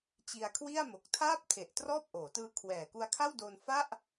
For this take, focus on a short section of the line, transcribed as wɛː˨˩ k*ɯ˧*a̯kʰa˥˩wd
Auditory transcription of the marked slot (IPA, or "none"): u˧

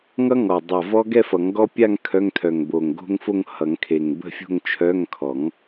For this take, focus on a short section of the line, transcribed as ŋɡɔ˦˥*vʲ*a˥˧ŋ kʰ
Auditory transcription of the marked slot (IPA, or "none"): pʲ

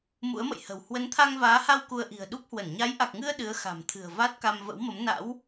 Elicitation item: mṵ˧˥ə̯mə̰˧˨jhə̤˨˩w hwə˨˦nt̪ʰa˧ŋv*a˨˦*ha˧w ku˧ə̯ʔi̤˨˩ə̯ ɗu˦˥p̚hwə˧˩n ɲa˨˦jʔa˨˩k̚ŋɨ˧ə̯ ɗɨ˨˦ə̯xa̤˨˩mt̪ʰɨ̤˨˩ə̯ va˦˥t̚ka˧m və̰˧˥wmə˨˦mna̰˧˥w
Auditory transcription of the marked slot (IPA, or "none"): aː˨˦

